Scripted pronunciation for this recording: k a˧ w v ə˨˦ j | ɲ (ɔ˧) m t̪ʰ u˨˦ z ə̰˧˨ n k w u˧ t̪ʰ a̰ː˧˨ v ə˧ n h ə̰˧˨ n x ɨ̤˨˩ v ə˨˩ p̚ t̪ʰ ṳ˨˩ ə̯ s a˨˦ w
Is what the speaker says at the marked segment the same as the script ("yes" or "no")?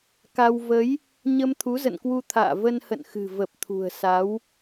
no